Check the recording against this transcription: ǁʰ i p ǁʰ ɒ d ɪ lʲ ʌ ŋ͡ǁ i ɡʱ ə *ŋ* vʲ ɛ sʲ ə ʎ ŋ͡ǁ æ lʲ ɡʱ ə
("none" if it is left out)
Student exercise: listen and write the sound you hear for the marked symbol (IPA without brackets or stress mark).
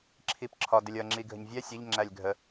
ɲ